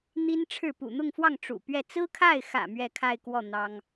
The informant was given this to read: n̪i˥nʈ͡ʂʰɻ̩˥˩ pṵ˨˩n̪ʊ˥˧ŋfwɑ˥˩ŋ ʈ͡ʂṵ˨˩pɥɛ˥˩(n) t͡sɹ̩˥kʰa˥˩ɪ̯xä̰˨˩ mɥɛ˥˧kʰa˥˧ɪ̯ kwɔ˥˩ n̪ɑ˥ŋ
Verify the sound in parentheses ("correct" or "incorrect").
incorrect